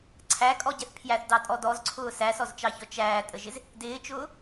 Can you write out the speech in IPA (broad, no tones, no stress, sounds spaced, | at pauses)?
ǀʰ æ kʼ ɔ ɟ ɛ θ pʰ j æ θ d ɑ tʼ ɔ d ɔ z ǀʰ ʊː s æ s ɔ z t͡ʃ ɑ ç ɔ t͡ʃ æː tʼ ə ʒ ɪ z | d ɪː t͡ʃ ʊː